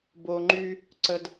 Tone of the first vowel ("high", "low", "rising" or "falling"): low